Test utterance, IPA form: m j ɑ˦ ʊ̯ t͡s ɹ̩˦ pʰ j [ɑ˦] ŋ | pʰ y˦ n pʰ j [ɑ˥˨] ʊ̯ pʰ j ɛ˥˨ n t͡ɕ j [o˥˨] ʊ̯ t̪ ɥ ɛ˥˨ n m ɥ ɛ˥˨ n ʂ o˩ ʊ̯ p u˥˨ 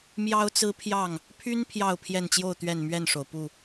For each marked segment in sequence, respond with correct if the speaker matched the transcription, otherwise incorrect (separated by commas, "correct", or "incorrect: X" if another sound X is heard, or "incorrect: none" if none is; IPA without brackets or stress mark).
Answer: incorrect: ɑ˥˨, correct, correct